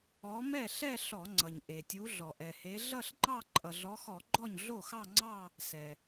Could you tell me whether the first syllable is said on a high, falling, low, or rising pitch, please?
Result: rising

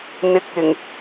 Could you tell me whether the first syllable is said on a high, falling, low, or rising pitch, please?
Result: low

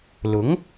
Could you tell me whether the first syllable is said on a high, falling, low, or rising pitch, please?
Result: rising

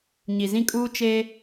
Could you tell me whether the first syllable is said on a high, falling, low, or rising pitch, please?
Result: low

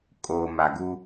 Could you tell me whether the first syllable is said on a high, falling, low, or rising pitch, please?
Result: low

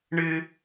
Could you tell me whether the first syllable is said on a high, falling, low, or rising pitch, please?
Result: high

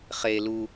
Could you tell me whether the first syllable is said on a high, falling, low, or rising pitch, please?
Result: low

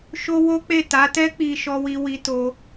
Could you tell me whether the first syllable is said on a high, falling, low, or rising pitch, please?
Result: high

